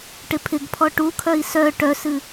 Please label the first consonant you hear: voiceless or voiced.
voiceless